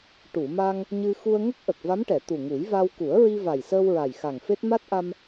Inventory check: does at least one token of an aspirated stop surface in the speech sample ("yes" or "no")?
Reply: no